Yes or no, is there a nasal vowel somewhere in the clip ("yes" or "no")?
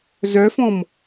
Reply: yes